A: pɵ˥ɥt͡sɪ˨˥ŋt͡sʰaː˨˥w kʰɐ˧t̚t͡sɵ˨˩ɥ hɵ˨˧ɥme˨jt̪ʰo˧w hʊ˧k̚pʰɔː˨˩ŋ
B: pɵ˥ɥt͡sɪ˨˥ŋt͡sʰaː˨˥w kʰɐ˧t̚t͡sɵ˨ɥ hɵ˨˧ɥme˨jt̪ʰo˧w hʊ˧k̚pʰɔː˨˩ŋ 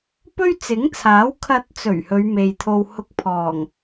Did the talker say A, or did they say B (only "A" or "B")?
A